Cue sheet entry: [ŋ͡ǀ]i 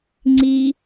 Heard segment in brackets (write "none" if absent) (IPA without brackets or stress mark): ŋ͡ǀ